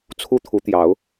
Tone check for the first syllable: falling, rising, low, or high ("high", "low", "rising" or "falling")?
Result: high